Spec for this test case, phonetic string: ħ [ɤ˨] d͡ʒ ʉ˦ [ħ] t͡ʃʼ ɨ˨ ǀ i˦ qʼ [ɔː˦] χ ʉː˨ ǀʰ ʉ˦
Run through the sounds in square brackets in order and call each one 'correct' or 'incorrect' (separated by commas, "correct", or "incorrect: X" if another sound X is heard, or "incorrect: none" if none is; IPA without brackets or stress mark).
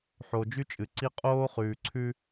incorrect: o˨, incorrect: none, incorrect: oː˦